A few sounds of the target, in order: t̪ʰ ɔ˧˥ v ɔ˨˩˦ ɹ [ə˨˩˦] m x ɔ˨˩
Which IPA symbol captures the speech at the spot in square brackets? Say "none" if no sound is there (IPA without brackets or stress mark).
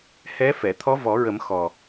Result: ə˨˩˦